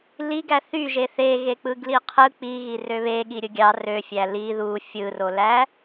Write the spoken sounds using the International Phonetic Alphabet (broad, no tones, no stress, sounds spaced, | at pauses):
l i ɡ æ θ y ʒ e θ e ɣ e k͡p ɯ ɡ l i qʰ ɯ k͡p i ɣ i r ø β e ɠ i ɾʲ ɯ ɡʲ ɑ r ø fʲ æ l i ð u fʲ ɯ r o l æ